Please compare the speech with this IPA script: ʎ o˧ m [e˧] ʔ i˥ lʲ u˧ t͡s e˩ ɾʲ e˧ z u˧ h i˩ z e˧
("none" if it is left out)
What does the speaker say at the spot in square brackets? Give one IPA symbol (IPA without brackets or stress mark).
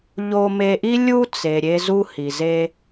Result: e˧